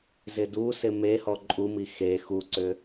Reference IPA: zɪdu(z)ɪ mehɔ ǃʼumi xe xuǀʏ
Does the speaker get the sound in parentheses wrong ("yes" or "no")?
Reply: yes